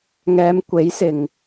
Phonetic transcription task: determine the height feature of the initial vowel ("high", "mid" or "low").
mid